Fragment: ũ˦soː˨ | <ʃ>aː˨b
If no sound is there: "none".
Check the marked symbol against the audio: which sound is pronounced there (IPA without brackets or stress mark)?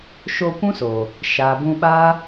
ʃ